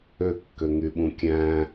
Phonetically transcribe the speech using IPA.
ø kː ø ŋ y ɓ ũ kʲ æ̃

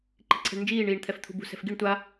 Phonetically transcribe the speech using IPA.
ǃ i̤ ǀʰ ɛ̤ ɳ n d͡ʒ iː ɳ iː ɳ t̪ʰ ɛ f t̪ʰ ṳ b ṳ s ɛ̤ f ɡ i ɳ tʷ a

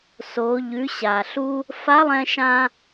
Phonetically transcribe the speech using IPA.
s o˩˧ ʎ ʉ˩˧ ɕ a˩ ɬ u˧ | f a˧˥ lˠ ɛ̃˧ ʃ ã˧

